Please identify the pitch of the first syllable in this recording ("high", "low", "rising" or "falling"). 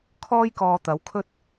high